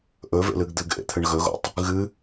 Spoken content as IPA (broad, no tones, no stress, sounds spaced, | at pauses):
ʔ ɵ v ḛ l ɨ ɡ d̪ ɨ ɡ ʔ ḛ t̪ʰ ɨ ɳ ɣ ɵ ɣ o̰ tˤ | ɣ ɨ